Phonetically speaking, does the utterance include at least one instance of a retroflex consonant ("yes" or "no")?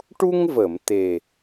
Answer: yes